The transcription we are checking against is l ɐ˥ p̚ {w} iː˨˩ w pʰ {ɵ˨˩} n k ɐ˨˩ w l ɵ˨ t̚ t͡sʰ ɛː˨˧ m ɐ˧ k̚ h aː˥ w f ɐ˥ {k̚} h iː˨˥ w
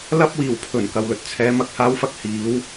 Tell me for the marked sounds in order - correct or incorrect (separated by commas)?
correct, correct, correct